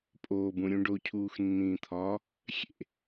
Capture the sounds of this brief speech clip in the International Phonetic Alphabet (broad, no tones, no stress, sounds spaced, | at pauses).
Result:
pʼ oː b ũ ɾʲ ũ ɖ o cʰ uː x nː ĩː t̪ʰ ɒː | xʲ ḛ